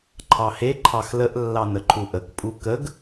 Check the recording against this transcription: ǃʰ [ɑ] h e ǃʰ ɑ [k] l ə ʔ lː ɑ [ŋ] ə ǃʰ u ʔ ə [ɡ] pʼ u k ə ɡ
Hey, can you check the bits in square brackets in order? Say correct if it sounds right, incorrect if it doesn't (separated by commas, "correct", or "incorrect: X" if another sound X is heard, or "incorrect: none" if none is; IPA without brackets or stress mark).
correct, incorrect: x, incorrect: n, incorrect: k